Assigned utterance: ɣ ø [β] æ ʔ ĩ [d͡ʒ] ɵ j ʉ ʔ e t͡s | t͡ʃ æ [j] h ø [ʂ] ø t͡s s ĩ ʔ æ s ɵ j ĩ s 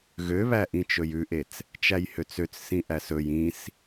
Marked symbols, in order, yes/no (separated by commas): yes, no, yes, no